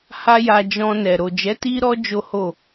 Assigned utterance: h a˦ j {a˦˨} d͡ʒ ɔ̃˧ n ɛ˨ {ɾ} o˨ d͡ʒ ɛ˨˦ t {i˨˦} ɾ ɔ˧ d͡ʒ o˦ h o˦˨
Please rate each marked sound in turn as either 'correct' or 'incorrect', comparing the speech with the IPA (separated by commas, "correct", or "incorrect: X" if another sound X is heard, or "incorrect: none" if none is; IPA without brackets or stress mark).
incorrect: a˧, correct, incorrect: i˧